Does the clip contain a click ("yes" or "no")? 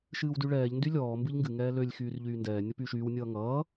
no